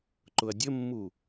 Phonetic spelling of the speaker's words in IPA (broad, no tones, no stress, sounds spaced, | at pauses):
ǃ ʊ ɐ̯ dʲ ə mː u